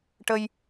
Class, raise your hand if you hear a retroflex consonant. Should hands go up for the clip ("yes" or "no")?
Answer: yes